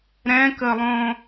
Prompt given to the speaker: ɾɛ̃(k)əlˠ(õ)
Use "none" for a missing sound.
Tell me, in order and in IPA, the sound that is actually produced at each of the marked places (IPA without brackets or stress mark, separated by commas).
k, õ